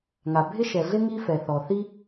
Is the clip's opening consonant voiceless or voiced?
voiced